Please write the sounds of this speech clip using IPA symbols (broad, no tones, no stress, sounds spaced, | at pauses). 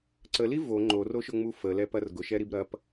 ǀ ə l i v o ŋ͡ǃ o r o ʃ ʊ ŋ͡m u f ə l ɛ p ɐ r ɡ ʊ ʃ ɛ ɾ i b ɾ ɐ p